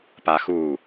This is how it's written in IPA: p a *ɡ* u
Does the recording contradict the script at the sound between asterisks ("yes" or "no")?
yes